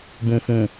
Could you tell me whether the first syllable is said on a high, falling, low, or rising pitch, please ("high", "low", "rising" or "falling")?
low